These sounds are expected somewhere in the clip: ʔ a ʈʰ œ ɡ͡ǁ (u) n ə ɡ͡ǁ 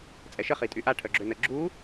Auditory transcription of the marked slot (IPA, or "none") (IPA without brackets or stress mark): ø